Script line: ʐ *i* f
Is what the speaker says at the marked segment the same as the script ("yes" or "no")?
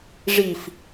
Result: yes